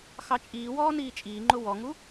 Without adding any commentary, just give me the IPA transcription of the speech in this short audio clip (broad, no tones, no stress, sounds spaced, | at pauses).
x ɑ t͡ʃʼ iː w ɔː n iː t͡ʃʼ iː ŋ͡ǃ ʊ w ɔ ŋ u